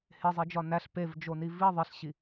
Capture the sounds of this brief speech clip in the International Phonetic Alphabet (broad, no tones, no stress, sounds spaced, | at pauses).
h e zˤ i d͡ʒ ɒ n æ ɬ p e v d͡ʒ o n i v i ðˤ e ɬ ɕ i